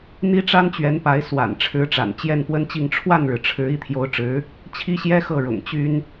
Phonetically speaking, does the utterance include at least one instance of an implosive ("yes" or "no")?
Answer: no